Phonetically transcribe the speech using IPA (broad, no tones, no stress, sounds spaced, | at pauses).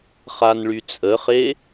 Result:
χ a n ɭ y t͡sʼ ə χ e